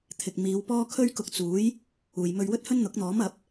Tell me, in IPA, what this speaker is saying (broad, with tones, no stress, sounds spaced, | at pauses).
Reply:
t̪ʰ ɪ˨ k̚ m iː˨˧ w p ɔː˥ kʰ ɵ˥ ɥ k ʊ˧ k̚ t͡s uː˨˥ j | uː˨ j m ɵ˧ ɥ w ɵ˥ t̚ h ɵ˥ n n̪ ʊ˨˥ k̚ n̪ ɔː˨˥ m ɐ˨˥ p̚